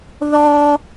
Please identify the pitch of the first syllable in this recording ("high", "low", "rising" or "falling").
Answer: high